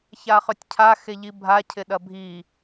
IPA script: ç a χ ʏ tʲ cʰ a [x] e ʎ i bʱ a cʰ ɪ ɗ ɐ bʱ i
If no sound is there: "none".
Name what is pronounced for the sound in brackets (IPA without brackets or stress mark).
x